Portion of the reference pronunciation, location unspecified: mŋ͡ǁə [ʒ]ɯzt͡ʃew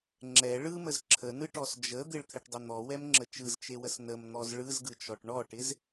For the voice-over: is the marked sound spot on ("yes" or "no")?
no